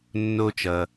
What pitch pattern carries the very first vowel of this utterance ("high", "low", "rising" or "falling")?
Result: high